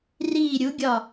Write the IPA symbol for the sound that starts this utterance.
r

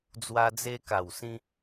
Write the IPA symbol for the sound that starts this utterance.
d͡z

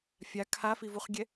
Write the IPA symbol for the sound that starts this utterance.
fʲ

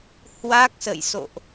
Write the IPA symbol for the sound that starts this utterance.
h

